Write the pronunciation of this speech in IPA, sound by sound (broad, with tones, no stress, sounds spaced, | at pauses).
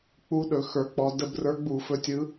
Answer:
k͡p u˧˥ ɗ ɵ˩˧ x ə˞˩˧ k͡p ɔ˩˧ d ə˧ b r ə˞˧˥ ɡ͡b u˧˩˧ f ɵ˧ tʲ ɯ˧˥